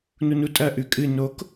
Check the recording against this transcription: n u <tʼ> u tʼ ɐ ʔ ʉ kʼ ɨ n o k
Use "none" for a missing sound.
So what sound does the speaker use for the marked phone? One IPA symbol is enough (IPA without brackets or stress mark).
n